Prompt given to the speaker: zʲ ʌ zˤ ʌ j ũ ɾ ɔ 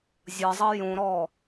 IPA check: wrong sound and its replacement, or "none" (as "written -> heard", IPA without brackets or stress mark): none